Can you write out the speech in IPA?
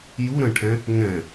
ju ɾə̃ʈʰɛ̃ | ŋɛ̃

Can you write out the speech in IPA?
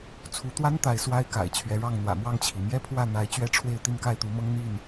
t͡sʰu˨˦t̪wa˦nt̪a˨˦ɪ̯ swa˦ɪ̯ka̰˨˩ɪ̯t͡ɕʰɥɛ˨˦ ɻɑ˥˨ŋn̪wä̰˨˩ mwɑ˥˨ŋt͡ɕʰi˩mjɛ˦ pʰwä˥˨n̪a˨˦ɪ̯ t͡ɕɥɛ˦ʈ͡ʂʰwe˥˨ɪ̯ t̪i˥˨nka˥˨ɪ̯t̪u˨˦mɤ˦ŋ n̪i˥˨n

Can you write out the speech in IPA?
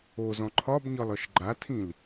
ozɔ̃ ǃʰɒbɲɒlɒʃ ɡ͡ǃatʰĩl

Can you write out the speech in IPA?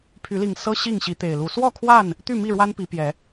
pʰy˨˦li˨˩ŋ sɤ˦ ɕi˥˨ŋɕi˨˦t̪e˨˩ɪ̯lu˨˦ swɔ˥˨kʰwa˥˨n | t̪y˥˨mi˥˨ɻwa˦n pi˨˦pjɛ˨˦

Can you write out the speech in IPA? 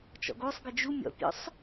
t͡ʃɔ̰ɡosˤɡə d͡ʒu mʲɔ̰pʲɔ̰sˤ

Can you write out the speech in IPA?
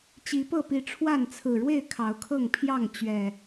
t͡ɕi˨˦pɤ˥˨pi˨˦ʈ͡ʂʰwa˥˨n t͡sʰɹ̩˨˩ɻwe˥˨ɪ̯ kʰɑ˨˦ʊ̯kʰɤ˥˨ŋpʰjɑ˥˨ŋ t͡ɕɥɛ˨˩

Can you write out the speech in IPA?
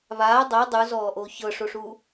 βaː dˤɤ dˤuzɔːʔoː çɤʂoʂuː

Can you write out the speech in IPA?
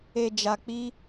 e˨d͡ʒa˨k͡pi˧

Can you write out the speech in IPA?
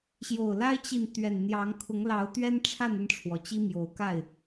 ɕjo˨˩ʊ̯la˦ɪ̯t͡ɕi˨n t̪ɥɛ˨˩n n̪jɑ˨˦ŋ kʰʊ˨˦ŋlɑ˨˦ʊ̯t̪ɥɛ˦nʈ͡ʂʰa˥˨n ə˥˨nʈ͡ʂʰwɔ˩ t͡ɕi˦mjo˨˦ʊ̯ka˥˨ɪ̯

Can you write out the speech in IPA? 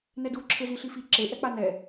nɛdu ǁʰeziɬifi ǁe ʔɛk͡panɛ

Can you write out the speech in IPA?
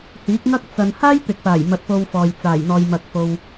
hiː˨˥k̚ŋɐ˥k̚ t͡sɐ˧n haː˥jt̪ɪ˨k̚paː˨˩j mɐ˧t̚po˧wfɔː˨j t͡saː˨˩jn̪ɔː˨jmɐ˨k̚fo˨w

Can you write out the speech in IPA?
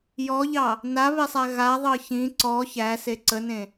jɔʎɑ | naβesˤæ ɣaðˤɤ çĩ ǀɔ çæse ǀənẽ

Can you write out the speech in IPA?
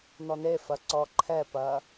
nɔnefɐ ǀɔǃʰɛpɐ

